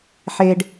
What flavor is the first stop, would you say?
plain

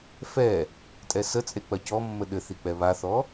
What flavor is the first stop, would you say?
ejective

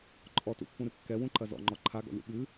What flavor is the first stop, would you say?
click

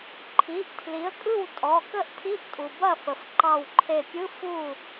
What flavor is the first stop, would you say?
click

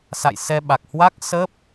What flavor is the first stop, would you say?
implosive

